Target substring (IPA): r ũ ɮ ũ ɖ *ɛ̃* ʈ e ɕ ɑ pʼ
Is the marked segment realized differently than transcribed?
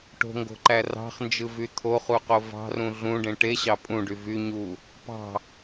yes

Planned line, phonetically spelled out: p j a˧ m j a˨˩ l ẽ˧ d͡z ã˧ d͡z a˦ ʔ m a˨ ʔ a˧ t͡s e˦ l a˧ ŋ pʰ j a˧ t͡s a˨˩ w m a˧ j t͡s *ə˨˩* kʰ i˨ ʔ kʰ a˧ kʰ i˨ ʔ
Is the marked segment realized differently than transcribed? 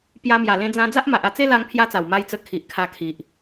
yes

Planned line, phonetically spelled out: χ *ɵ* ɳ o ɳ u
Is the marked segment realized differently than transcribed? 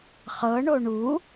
yes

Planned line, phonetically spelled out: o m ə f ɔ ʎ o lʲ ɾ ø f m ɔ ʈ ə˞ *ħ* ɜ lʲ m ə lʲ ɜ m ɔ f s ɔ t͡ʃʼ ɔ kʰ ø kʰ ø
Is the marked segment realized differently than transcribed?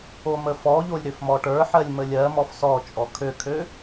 no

